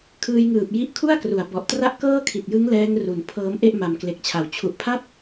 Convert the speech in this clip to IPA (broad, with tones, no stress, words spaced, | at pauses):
kʰɯː˧jŋɯː˨˩p̚ ji˦˥ʔkʰu˥˩a̯kru˩˦a̯ bɔ˨˩ʔtra˥˩ʔ kɤː˥˩kʰi˨˩t̚jɯ˦˥ŋ lɛː˦˥ŋru˩˦n pʰɤː˦˥mʔe˥˩ʔ ma˨˩mkle˨˩k̚t͡ɕʰa˨˩w t͡ɕʰu˨˩ʔpʰa˥˩p̚